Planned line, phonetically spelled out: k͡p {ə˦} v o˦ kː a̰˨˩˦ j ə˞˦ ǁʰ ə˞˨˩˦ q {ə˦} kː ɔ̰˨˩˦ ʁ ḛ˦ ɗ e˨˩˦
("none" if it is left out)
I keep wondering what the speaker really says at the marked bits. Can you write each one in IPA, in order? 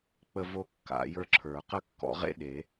ə˦, ə˦

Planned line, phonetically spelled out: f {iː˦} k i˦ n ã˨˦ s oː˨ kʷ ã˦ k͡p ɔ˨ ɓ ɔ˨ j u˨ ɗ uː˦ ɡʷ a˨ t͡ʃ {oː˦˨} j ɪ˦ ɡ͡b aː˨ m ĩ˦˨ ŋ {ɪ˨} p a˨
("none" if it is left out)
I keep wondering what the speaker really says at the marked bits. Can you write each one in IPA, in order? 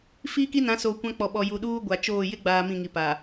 iː˦, oː˦˨, i˨

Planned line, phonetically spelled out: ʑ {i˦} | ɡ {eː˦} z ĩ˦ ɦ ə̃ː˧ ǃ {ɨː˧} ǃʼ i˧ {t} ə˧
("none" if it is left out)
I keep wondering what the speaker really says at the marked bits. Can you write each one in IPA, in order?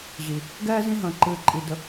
i˨, ɛː˦, ɨː˧, d

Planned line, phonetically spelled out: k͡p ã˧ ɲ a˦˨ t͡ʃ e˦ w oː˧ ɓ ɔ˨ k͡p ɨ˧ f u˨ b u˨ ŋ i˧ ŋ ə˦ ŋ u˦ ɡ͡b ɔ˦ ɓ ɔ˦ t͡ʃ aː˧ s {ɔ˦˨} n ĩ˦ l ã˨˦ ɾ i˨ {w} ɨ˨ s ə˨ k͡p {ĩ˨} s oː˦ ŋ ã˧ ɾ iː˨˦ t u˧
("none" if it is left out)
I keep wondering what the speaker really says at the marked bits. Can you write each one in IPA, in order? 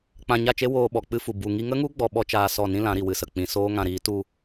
ɔ˦˨, w, ĩ˨

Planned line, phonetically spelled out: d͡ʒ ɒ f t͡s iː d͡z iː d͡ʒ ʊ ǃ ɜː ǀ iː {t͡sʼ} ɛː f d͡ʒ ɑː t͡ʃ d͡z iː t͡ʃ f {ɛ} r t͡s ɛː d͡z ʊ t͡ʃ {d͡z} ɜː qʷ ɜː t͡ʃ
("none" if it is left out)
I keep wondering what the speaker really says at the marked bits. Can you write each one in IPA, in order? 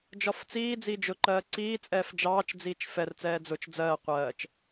t͡sʼ, ɛ, d͡z

